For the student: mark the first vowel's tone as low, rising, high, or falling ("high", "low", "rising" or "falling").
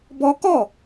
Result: high